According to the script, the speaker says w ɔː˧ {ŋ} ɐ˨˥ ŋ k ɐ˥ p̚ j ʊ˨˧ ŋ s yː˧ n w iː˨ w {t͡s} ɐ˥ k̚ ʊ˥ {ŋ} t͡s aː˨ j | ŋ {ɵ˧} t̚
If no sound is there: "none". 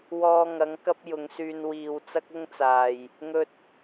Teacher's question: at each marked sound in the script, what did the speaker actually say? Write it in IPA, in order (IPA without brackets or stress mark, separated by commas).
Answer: ŋ, t͡s, ŋ, ɵ˧